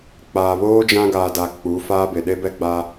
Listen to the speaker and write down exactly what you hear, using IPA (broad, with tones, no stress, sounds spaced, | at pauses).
k͡p aː˨ β oː˦ d͡ʒ ã˦ ɡ aː˨ d a˨ k͡p u˨˦ f aː˦ b e˨ ɗ e˦ b ɛ˦ ɡ͡b aː˦